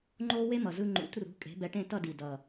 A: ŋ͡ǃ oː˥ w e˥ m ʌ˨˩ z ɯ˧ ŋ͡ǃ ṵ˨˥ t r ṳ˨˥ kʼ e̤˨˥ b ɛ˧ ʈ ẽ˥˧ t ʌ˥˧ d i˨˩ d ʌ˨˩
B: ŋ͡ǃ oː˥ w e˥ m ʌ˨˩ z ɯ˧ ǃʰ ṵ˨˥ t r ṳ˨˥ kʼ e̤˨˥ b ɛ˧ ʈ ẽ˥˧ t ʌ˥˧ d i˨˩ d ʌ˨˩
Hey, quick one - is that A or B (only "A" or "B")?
A